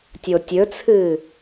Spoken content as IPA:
tʲ o tʲ ɵ t͡sʰ ɨː

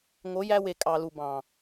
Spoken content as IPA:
ŋ o˨˦ j æ˧ w e˨ kʼ ɑ˨ l u˨ b ɑ̃˨

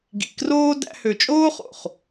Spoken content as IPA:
ɡ ḭ˨ k r oː˦ d æ̰˧ h ø˨ t͡ʃʼ oː˦ χ o̰˨ χ

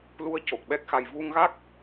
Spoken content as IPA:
l u˧ ə̯ c o˨˩ k̚ ɓ ɛ˦˥ k̚ x a˧ j v u˧ ŋ ɣ a˦˥ k̚

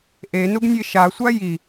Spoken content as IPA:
ʔ e n u ɡ nʲ e ʃ a sʷ a j i

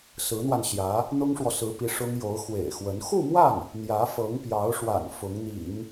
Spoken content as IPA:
s ɹ̩˧˥ n̪ w a˧ n ɕ j ä˧˥ | n̪ ʊ˥ ŋ ʂ w ɔ˨ s ɹ̩˧˥ p i˧˥ ʂ ʊ˥ ŋ j o˧˥ ʊ̯ x w ḛ˨˩ ɪ̯ x w ə˧˥ n x u˥˧ m w a˥˩ n | n̪ j ä˧˥ f ɤ˧˥ ŋ p j ɑ˧˥ ʊ̯ ʂ w a̰˨˩ n f ʊ˧˥ ŋ n̪ ḭ˨˩˦ ŋ

